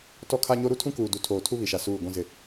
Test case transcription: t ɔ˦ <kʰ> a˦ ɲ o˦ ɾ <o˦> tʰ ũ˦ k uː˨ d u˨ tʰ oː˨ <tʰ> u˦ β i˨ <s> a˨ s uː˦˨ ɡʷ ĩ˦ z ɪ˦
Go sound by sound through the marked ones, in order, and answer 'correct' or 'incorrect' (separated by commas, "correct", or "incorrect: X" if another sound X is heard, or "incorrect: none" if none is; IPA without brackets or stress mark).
correct, incorrect: u˦, correct, incorrect: ʃ